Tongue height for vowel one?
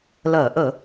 mid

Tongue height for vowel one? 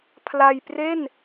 low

